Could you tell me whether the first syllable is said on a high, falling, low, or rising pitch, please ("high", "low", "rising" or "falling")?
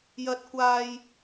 high